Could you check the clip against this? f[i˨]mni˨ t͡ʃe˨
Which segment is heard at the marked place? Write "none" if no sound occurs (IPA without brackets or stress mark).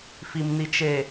i˨